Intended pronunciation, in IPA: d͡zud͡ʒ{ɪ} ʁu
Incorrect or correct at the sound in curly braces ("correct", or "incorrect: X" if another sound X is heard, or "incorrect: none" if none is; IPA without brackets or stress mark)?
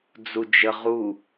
incorrect: ə